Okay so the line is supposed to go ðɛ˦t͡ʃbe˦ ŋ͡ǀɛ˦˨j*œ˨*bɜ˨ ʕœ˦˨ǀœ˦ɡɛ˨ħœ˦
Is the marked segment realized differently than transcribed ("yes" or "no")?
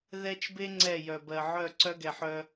no